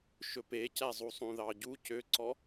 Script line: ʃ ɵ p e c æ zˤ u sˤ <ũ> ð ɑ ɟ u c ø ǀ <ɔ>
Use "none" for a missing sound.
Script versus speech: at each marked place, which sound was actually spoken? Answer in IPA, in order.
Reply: ũ, ɔ

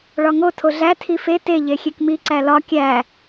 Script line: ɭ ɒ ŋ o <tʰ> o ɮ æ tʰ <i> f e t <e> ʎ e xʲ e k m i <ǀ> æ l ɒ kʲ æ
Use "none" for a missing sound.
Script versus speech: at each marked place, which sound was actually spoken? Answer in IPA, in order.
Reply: tʰ, i, e, ǀ

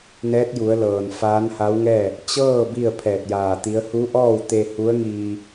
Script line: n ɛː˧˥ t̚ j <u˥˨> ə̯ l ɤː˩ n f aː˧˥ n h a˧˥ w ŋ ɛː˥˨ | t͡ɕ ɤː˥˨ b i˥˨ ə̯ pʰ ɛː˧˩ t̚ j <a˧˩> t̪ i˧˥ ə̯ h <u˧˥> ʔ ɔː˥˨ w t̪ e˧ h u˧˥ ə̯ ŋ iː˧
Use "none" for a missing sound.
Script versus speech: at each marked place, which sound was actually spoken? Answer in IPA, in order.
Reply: u˩˧, aː˧˩, u˧˥

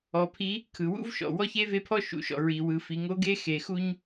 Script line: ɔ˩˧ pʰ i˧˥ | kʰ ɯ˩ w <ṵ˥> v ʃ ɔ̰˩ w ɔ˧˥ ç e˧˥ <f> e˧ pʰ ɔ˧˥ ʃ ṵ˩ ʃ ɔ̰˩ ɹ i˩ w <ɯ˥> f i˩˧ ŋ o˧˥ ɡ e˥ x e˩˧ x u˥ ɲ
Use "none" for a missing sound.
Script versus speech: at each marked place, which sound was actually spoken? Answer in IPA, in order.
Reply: ṵ˥, v, ɯ˩˧

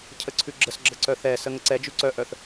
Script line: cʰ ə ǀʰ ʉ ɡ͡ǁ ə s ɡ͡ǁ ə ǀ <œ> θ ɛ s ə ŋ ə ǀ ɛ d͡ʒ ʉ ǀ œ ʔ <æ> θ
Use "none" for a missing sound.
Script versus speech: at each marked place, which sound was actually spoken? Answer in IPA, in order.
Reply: œ, œ

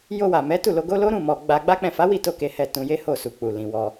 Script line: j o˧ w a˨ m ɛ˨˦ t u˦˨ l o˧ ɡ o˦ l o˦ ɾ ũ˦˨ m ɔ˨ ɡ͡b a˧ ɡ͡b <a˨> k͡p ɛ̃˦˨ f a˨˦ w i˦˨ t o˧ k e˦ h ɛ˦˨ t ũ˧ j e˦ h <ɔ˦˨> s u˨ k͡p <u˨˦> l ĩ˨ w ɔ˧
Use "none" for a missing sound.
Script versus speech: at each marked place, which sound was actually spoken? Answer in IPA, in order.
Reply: a˦, o˦˨, u˨

